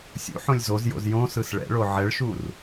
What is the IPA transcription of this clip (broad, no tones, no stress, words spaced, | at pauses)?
sʲṵħõlʲ zozjo̰z jõsɯs ɭɛ̰ɭo ʕɛɭʃur